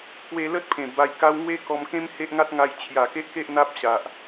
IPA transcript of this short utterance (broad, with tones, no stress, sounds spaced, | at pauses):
k w e˧ l ə˦ t̚ pʰ ẽ˨˩ b a˧ j k a˦ w ŋ w e˦ k ɔ˧ m k ẽ˦ m h e˦ ʔ ŋ a˦ t̚ ŋ a˧ j t͡ɕʰ j a˨˩ k e˦ ʔ k e˦ ʔ n̪ a˦ p̚ ɕ a˨ ʔ